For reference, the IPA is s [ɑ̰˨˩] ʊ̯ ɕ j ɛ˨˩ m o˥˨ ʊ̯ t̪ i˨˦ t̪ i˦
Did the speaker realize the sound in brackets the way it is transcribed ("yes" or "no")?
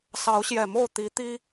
no